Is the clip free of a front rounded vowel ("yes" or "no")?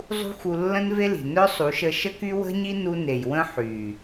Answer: no